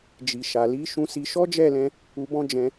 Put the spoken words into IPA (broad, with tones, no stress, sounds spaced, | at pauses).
d͡ʒ i˨ ʃ a˨ l i˨˦ ʃ ũ˧ s i˧ ʃ ɔ˦ d͡ʒ ɛ˦˨ l ɛ̃˧ | u˧ b ɔ̃˦ d͡ʒ ɛ̃˧